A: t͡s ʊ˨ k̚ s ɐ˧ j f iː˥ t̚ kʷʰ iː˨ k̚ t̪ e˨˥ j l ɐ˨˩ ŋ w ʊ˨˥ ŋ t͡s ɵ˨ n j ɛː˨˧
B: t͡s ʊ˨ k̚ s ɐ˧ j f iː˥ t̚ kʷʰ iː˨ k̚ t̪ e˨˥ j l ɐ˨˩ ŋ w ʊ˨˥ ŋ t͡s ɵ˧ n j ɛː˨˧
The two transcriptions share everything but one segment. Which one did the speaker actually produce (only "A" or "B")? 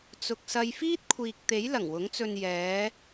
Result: B